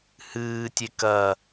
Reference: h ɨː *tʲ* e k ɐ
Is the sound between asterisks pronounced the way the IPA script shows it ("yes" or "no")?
yes